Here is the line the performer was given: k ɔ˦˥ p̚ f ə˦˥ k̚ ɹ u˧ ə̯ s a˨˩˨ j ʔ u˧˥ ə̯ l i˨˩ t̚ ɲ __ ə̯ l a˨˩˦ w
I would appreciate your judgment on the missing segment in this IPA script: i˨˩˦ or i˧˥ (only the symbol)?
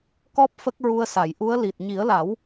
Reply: i˨˩˦